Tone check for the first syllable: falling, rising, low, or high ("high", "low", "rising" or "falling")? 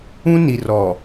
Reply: high